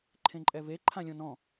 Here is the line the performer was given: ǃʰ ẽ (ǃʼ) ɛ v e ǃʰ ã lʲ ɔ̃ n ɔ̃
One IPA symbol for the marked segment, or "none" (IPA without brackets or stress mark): ǃʼ